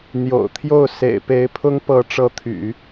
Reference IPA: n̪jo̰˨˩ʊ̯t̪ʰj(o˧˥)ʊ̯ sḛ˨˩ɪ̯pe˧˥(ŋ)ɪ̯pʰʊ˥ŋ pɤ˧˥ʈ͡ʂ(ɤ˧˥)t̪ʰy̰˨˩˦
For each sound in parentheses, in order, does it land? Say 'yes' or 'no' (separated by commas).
no, no, yes